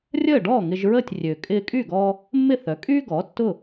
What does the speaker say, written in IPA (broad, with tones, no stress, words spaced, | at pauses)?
rʲəː˥˩ɖɔː˥˩ ŋɪ˧ʒɹəː˥˩tʲ rʲø˩kʼɪː˧kʼy˥˩ ɡɔ˧ | mːɪ˥˩θœ˩˥kʼyː˥ɡɔː˩˥ tːʊ˥˩